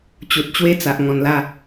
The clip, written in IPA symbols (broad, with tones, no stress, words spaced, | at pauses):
t͡ɕu˨t̚t͡ɕwe˥˧t͡sa˨ʔ ŋɔ̃˨˩nla˥˧